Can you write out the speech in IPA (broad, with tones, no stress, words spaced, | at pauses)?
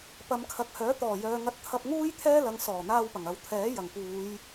pɐ˨˧mkʰɐ˨k̚hœː˨˥ t̪ɔː˨˩jœː˨ŋɐ˧t̚ t̪ʰɐ˧p̚ŋuː˥j t̪ʰɛː˥lɐ˨˧ŋ sɔː˨˩n̪aː˧wpɐ˨˩ŋ ɐ˨˧wt̪ʰɛː˨˥ jɐ˨˩ŋpuː˨˧j